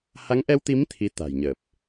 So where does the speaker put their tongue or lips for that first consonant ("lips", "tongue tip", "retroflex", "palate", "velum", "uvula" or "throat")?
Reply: throat